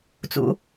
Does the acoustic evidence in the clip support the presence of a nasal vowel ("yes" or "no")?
no